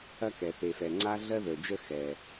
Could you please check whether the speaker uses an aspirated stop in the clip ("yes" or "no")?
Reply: no